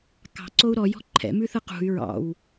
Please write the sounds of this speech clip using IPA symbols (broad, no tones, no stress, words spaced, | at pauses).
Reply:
kɑ̤ǀou̯ ɾɔjɔ̤ ǃʰɛ̰mʉθɯ qṳy̯ ɹɑ̰w